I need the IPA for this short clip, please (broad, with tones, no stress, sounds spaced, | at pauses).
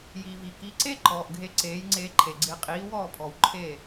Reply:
j i˩ v i˩ k i˩˥ ǀ e˥ ǃ ɔː˩ ʔ ɡʱ e˧ ǀ eː˩˥ j ŋ͡ǀ eː˧ ǃʰ e˩ ɡ͡ǀ ɪː˧ qʼ iː˩˥ w ɔː˥˩ pʰ ɔ˩ w ǃʰ e˥˩